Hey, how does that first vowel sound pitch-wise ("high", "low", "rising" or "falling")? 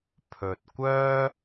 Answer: low